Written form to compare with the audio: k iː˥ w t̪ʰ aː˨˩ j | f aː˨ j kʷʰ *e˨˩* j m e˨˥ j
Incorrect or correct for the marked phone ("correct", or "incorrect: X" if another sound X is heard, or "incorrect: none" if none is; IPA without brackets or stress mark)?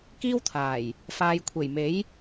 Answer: correct